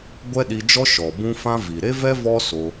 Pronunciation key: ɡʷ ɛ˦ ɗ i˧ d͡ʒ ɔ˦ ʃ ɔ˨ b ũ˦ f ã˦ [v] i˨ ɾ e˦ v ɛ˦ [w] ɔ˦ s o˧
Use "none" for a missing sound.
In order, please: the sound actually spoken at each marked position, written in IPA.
v, v

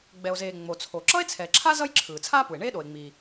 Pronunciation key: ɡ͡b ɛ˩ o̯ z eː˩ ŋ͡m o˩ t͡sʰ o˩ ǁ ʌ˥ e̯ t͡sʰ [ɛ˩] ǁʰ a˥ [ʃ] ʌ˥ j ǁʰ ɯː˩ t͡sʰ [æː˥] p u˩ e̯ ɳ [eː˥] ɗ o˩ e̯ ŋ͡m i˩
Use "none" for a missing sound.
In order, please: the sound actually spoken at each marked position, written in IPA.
ɛ˩, z, aː˥, eː˥

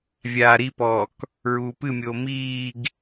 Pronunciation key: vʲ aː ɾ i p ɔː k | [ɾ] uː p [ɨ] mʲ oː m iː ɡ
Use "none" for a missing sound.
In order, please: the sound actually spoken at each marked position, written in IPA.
ɹ, ɨ

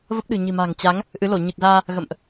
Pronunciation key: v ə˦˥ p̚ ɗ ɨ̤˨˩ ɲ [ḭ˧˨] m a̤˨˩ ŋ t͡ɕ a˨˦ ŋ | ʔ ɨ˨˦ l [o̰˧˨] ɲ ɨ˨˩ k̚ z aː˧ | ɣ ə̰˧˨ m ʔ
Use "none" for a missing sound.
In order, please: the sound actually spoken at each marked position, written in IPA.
i̤˨˩, o˧˩

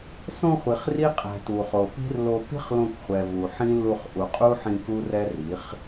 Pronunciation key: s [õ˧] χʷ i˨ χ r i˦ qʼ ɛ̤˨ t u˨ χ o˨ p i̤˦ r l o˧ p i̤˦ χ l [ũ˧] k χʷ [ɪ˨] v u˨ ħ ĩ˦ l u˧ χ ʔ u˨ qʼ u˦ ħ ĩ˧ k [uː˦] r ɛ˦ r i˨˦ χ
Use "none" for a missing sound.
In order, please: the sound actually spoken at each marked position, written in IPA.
õ˧, õ˧, ɛ˨, u˦

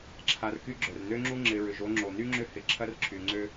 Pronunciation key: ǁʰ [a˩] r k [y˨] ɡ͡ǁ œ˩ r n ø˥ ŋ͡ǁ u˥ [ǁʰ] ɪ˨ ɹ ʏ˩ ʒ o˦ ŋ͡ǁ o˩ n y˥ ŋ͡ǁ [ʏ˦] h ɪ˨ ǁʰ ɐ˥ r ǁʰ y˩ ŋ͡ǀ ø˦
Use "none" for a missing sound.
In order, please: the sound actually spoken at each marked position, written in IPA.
a˨, y˦, ŋ͡ǁ, ʏ˦

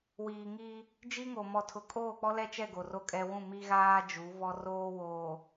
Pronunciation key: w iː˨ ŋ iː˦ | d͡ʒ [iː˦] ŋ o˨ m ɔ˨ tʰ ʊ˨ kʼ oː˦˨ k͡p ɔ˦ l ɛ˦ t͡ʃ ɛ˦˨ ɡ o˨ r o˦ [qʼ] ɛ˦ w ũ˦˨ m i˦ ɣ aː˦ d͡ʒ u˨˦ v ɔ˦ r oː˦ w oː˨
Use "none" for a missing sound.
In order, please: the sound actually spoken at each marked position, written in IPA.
i˦, kʼ

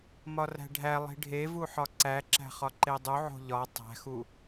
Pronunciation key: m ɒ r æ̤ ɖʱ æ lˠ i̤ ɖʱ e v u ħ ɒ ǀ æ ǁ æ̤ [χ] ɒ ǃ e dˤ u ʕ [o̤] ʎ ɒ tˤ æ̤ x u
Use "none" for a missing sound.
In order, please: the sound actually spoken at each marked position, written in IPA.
χ, o̤

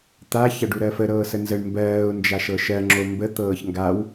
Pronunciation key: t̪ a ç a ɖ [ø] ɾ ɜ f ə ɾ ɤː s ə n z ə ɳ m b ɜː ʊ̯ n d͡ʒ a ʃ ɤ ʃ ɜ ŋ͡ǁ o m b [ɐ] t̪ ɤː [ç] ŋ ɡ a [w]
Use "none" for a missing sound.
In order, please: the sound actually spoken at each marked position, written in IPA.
u, ə, ç, w

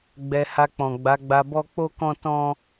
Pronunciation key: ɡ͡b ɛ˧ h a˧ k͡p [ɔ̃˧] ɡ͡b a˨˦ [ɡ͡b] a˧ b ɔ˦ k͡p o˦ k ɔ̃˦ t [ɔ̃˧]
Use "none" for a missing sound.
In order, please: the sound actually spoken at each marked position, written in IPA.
ɔ̃˨, ɡ͡b, ɔ̃˦

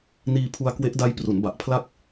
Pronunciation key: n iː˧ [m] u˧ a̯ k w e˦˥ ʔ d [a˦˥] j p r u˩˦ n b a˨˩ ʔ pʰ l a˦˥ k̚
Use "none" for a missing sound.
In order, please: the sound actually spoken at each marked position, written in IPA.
pʰ, a˦˥

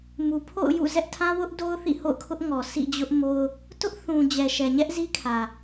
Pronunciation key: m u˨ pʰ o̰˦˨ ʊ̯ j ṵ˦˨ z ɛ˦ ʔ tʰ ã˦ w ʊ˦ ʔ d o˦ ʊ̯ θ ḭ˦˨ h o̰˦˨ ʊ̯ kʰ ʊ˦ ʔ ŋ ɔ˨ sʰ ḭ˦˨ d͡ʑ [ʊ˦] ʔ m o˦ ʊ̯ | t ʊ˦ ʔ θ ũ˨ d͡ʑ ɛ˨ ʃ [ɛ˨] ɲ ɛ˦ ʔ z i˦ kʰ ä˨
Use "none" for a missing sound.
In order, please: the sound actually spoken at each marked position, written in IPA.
ʊ˦, ɛ˨

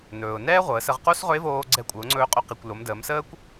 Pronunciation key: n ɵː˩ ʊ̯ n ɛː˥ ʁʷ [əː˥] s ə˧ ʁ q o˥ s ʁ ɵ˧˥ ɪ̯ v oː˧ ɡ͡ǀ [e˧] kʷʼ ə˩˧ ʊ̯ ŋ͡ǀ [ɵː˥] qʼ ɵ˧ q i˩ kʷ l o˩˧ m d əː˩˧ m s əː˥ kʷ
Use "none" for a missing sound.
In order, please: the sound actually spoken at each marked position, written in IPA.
əː˩˧, ɛ˧, ɵː˧

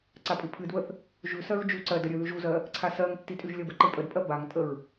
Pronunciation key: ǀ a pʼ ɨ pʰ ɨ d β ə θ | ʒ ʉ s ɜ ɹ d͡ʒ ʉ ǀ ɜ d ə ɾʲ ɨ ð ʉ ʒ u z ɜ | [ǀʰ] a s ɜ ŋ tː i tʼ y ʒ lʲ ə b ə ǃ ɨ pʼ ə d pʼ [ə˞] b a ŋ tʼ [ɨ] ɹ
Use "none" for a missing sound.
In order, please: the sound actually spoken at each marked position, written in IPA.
ǀʰ, ɜ, ə

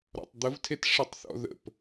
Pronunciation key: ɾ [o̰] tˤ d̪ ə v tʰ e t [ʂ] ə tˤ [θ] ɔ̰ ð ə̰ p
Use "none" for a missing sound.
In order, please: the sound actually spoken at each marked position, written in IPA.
ɔ̰, ʂ, θ

